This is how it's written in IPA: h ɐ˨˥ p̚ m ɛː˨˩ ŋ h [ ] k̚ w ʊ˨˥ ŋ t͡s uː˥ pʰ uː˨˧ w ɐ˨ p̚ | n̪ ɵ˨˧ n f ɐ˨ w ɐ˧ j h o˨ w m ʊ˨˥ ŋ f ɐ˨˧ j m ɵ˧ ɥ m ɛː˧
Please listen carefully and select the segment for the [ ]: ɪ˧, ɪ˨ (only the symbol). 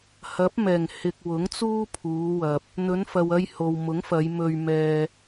ɪ˨